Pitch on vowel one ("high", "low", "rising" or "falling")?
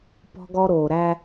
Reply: high